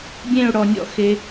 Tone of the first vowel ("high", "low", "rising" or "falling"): falling